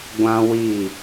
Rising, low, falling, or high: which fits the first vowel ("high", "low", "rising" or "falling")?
high